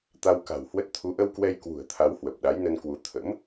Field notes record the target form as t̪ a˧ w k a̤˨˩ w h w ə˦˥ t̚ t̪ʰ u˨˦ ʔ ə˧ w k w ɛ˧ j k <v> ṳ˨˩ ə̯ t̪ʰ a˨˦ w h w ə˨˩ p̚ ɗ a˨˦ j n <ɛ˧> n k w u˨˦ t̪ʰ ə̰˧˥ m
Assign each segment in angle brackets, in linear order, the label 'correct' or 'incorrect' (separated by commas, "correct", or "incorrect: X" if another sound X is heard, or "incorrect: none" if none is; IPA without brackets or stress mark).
incorrect: w, incorrect: ə˧